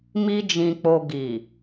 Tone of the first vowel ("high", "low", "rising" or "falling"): high